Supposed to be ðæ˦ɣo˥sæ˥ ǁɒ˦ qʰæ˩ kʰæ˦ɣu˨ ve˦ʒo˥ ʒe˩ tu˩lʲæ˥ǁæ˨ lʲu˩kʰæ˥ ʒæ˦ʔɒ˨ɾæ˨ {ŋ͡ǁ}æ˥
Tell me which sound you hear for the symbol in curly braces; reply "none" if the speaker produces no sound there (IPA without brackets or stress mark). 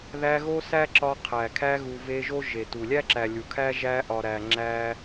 ŋ͡ǁ